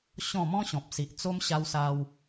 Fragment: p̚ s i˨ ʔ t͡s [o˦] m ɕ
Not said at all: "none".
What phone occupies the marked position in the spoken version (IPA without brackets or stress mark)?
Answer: o˦